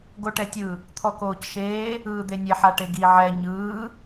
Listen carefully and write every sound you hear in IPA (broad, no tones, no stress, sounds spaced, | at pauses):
ɡ o ʈ ɛ tʲ ɯ | t̪ʰ ɔ k oː c ʃ eː | ɯː d̪ e nʲ e ħ a ʈ e ɡ i ʕ ɛ ɲ ɯː